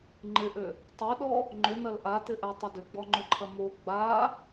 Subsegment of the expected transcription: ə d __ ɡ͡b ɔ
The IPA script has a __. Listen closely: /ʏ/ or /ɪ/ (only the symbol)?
ʏ